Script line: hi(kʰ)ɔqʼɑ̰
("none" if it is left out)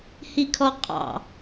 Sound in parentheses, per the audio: kʰ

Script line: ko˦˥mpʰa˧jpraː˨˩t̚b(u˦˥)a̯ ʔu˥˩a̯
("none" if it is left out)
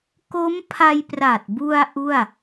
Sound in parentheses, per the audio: u˧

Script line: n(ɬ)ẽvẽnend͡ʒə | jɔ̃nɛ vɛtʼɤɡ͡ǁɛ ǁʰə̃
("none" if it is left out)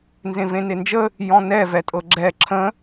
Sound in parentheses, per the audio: z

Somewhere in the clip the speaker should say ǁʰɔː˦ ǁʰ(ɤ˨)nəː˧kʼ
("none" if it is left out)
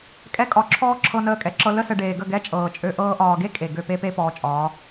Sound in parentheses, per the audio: ɤ˧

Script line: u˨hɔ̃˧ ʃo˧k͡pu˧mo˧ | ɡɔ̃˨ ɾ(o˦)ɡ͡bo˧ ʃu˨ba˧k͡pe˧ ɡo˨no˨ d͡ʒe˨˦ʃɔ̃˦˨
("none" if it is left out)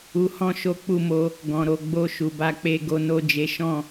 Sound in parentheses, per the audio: o˨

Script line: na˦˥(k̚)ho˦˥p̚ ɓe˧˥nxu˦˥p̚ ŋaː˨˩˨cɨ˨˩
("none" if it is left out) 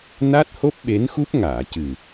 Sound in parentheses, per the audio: t̚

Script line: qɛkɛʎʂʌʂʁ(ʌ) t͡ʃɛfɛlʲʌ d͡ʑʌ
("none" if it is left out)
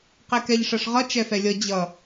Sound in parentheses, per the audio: ʌ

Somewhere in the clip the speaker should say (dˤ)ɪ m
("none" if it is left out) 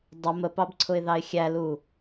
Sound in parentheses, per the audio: dˤ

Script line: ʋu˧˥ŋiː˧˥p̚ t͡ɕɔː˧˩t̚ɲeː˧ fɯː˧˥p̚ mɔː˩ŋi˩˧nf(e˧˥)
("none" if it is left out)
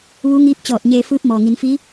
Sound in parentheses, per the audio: i˧˥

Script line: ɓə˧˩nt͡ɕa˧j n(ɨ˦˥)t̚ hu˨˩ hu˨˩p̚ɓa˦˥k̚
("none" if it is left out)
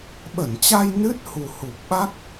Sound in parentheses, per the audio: ɨ˦˥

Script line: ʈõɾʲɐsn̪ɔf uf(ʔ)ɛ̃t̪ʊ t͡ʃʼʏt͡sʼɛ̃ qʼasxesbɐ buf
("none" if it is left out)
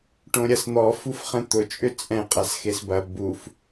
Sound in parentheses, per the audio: χ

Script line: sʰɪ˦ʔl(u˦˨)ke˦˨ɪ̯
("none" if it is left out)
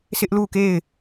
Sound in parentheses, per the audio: u˦˨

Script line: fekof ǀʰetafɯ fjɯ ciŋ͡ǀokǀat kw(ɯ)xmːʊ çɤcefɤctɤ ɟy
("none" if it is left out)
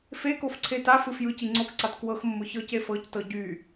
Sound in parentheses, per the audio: ɤ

